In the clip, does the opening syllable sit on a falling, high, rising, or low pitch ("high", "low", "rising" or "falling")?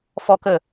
high